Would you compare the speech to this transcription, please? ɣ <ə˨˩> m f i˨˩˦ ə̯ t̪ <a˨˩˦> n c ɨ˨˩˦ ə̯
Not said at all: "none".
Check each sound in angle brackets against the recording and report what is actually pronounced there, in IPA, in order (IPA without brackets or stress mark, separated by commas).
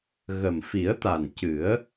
ə˨˩, a˨˩